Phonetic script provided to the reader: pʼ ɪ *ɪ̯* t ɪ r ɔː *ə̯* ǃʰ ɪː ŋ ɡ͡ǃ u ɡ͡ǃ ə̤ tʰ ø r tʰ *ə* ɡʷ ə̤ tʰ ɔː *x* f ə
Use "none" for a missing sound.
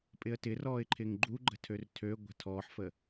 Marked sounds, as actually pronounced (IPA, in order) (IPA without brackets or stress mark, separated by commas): ə̯, ɪ̯, ø, ħ